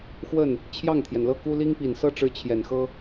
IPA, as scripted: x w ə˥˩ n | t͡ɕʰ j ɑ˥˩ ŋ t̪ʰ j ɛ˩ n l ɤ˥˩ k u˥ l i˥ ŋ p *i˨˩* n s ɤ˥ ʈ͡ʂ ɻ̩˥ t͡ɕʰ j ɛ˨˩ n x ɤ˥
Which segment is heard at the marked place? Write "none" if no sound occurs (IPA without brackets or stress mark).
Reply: i˨˩